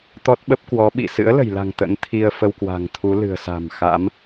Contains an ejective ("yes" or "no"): no